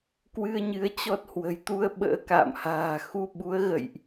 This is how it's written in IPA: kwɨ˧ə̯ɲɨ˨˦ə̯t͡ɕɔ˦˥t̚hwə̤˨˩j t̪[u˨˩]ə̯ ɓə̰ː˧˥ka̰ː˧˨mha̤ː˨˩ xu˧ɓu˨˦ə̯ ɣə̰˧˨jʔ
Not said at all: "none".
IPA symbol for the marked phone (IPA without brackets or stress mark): u˧